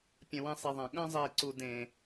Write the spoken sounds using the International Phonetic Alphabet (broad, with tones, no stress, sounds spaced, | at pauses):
pʲ ɐ̃˧ w ẽ˧ sˤ e˨ ðˤ ɐ̃˨ ɠ ɐ̃ː˦ zˤ eː˨ ǀ u˨ d ẽ˨